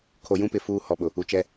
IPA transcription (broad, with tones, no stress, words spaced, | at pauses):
kʰo˨jũ˦pɪ˨ fuː˦ hɔ˨ɓʊ˨ | u˨t͡ʃɛ˦